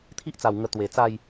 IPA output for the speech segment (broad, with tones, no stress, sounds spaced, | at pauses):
t̪ʰ i˦ ʔ t͡s a˨˩ w ŋ ə˧ t̪ w e˨˩ t͡s a˥˧ j